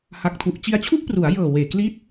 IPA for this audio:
ha˨˩k̚tʰu˨˩ʔ t͡ɕi˧a̯t͡ɕʰu˥˩ʔpru˩˦a̯jɤː˨˩ weː˨˩ kli˦˥t̚

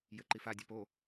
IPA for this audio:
jɘǃifa dʲapo

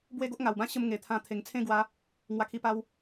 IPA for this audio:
bwe˦ɡo˦ʔŋa˨˩wbã˦ ɕə˧m ŋe˨˩t̪ʰã˧ t̪ʰe˨˩ŋt͡sʰẽ˦ɡwa˨˦ | ŋwa˧kʰi˧ pa˧w

